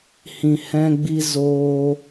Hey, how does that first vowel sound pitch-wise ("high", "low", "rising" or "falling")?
low